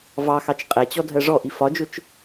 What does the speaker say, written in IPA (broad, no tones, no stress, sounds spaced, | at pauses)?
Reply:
v ɑ x ɑ t͡ʃ qʼ ɛ t͡ɕ ɔ dʱ ɜ ʐ ɔ ʔ i f ɒ d͡ʒ ʊ t͡ʃ